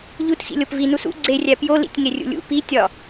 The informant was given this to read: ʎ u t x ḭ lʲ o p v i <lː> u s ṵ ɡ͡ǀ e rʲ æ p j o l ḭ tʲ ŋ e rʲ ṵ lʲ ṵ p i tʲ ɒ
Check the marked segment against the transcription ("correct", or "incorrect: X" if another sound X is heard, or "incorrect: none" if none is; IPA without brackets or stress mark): incorrect: n